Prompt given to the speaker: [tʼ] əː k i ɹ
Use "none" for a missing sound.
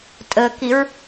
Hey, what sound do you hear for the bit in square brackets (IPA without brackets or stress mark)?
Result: tʼ